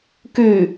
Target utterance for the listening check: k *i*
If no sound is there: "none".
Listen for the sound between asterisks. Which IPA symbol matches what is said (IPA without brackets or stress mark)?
y